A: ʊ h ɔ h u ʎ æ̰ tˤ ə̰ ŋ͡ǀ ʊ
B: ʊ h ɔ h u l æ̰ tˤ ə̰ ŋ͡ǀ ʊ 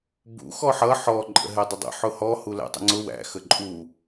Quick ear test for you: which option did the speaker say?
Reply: B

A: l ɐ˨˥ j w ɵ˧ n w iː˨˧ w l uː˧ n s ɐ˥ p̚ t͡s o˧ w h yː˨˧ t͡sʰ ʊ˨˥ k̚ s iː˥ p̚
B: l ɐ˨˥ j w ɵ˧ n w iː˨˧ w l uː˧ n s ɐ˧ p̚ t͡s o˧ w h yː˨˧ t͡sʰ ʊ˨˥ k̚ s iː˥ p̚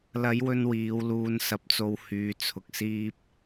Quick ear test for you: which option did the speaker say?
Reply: B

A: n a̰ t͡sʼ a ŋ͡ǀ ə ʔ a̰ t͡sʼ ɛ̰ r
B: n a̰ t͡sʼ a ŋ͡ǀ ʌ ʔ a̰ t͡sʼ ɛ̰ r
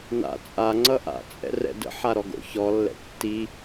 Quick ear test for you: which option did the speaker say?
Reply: B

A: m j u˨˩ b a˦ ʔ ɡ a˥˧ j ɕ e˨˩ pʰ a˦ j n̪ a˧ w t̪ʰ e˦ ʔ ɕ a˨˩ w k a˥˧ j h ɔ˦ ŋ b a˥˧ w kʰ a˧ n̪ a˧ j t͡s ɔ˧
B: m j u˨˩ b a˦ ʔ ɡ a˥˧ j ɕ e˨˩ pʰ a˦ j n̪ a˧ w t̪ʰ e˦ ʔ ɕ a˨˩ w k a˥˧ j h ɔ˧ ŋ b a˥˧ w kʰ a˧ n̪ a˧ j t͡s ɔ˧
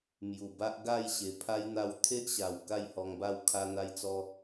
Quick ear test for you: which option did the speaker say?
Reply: B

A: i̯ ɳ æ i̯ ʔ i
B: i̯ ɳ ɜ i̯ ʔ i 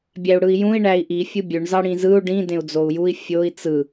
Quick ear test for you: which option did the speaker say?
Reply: A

